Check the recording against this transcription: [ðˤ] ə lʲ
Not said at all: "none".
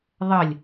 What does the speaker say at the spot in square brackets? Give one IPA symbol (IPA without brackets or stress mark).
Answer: ðˤ